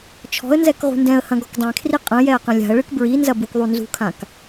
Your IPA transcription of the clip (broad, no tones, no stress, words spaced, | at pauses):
t͡ʃʰɔ̤ə̯nzɛk ʁṳndɛ̃ə̯hɐ̃ ɡɔkdˤɛ̃kʰri qʼɐ̃jɛə̯ qɐ̃lʲa̤ə̯ɭɨk bɹinzɐ bukðˤunzṳkʰãk